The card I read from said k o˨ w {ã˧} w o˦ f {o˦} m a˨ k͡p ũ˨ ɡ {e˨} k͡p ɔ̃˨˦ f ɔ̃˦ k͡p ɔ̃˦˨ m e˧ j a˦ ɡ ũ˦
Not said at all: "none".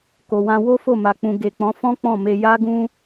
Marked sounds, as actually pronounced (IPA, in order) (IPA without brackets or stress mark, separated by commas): ã˧, o˦˨, e˨